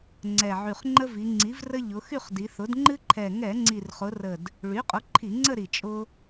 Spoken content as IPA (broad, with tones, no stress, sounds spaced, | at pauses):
ŋ͡ǀ ɛ˨˩ ʕ y˨˩ χ ŋ͡ǃ ə˦ v i˩˧ ŋ͡ǀ i˩˥ v r ə˦ ʎ ʊ˩˧ x y˦˨ χ d i˩˧ θ ʊ˩˥ d ŋ͡ǃ ɨ˦ ǃʰ ɛ˨˩ ŋ ɛ˧˩˧ ŋ͡ǀ i˨˩ r χ ʊ˩˧ r ə˨˩ d | ɭ y˩˥ qʼ ʊ˩˥ ǃʰ i˧˩˧ ŋ͡ǀ ə˦˨ ɾ i˨˩ t͡ʃʼ ʊ˦